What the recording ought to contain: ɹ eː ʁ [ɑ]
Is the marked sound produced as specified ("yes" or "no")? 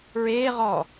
no